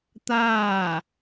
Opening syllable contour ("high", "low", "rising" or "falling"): falling